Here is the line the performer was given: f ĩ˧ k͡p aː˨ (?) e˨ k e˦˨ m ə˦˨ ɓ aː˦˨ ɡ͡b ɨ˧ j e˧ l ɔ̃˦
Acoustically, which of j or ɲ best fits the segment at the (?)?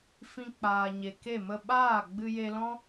ɲ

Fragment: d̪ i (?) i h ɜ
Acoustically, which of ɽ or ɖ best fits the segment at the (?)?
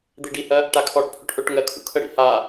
ɖ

